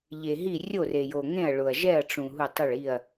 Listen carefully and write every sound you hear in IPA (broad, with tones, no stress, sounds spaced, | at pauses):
ʎ e˨ ɦ i˦˨ rʲ o˦˨ r e˨ j o˨ ŋ ẽ˦˨ ɐ̯ ɭ ʊ˨ ɐ̯ ʒ ɛ˦˨ ɐ̯ ʈ͡ʂ ũ˨ ɦ u˦˨ tˤ ɪ˦˨ ɭ i˦˨ ɐ̯